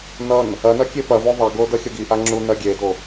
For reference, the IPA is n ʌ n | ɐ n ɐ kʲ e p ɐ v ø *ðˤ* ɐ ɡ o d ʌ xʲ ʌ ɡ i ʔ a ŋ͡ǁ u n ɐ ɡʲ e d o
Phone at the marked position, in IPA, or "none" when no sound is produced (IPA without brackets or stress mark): ðˤ